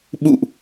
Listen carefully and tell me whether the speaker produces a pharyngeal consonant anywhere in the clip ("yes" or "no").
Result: no